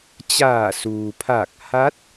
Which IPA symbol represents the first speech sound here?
t͡ɕ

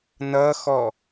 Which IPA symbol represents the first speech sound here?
n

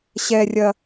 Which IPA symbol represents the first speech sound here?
ɕ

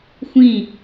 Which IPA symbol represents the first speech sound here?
xʷ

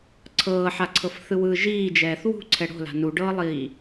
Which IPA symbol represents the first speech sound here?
ǀʰ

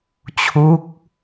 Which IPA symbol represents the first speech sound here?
t͡ɕʰ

